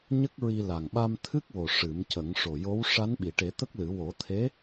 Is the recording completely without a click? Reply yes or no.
yes